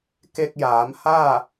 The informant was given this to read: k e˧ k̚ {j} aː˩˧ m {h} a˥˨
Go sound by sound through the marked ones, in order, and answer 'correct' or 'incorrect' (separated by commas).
correct, correct